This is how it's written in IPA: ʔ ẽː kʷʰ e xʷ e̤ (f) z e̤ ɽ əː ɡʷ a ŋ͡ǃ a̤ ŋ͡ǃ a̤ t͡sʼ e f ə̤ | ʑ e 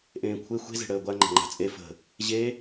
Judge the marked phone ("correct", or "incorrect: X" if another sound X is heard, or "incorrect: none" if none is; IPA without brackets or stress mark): incorrect: none